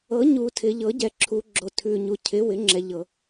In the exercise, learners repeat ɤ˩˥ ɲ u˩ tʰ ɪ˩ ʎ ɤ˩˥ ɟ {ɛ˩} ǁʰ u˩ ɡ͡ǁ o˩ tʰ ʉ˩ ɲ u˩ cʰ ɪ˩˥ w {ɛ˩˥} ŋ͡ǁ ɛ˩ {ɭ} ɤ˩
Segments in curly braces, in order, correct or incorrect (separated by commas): correct, incorrect, incorrect